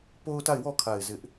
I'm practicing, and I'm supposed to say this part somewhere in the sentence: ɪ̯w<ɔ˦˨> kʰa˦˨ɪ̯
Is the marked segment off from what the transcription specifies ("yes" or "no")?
no